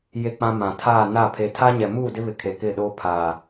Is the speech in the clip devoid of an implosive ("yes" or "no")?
no